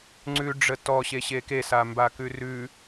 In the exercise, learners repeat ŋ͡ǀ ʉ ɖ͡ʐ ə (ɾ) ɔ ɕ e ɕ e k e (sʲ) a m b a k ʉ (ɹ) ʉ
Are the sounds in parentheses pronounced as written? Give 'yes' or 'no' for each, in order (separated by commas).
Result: no, no, no